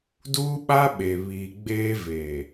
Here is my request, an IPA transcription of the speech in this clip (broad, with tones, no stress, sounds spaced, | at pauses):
d uː˦ ɓ a˦ ɓ e˨ β iː˨ ɡ͡b eː˦ v eː˨